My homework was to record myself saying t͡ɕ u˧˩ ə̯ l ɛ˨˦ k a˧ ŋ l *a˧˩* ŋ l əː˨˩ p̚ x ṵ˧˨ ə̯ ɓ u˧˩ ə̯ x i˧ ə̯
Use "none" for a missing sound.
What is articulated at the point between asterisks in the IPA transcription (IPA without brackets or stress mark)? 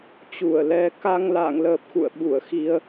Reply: a̰˧˨